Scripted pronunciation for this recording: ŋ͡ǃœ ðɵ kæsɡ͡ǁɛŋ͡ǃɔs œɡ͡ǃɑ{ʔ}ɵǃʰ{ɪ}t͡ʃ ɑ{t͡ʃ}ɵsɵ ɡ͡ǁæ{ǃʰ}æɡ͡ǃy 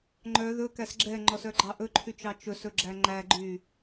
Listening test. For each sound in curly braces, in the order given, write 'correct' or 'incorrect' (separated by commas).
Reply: correct, incorrect, correct, incorrect